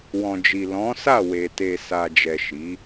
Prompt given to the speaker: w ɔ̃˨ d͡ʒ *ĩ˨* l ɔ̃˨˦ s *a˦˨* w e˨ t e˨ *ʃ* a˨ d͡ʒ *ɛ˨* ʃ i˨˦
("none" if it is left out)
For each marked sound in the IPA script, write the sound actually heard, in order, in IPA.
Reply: i˨, a˦˨, s, ɛ˨

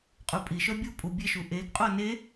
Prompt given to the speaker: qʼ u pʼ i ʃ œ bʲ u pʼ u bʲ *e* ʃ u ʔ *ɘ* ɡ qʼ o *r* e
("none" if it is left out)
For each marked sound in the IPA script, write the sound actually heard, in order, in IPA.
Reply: e, e, n

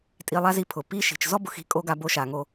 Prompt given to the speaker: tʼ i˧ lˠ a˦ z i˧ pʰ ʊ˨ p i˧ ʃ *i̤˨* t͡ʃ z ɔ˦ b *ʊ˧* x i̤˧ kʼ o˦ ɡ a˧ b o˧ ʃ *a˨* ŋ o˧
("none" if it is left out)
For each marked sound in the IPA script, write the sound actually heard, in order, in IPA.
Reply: i̤˨, ʊ˧, a˨

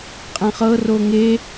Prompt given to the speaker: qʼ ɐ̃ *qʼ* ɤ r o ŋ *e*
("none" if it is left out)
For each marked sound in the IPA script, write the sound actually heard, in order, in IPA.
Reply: χ, e

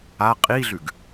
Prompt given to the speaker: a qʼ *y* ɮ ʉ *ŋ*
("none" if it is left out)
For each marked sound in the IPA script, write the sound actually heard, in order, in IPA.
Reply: i, ɡ

